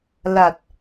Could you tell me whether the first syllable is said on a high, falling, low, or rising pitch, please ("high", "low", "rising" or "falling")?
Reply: low